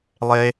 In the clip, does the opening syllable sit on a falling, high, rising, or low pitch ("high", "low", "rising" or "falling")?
high